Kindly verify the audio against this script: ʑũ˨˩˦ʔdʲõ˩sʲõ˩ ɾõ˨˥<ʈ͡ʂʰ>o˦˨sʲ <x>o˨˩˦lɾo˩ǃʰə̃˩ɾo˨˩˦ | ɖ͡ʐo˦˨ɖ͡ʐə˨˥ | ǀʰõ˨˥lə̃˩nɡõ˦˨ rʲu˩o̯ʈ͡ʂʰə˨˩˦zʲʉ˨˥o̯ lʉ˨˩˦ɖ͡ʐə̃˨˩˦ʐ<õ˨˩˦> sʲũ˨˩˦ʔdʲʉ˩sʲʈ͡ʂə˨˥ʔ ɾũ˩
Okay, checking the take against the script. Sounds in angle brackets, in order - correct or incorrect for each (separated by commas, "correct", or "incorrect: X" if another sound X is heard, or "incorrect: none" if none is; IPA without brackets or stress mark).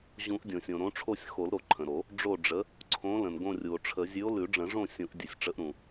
correct, correct, incorrect: õ˦˨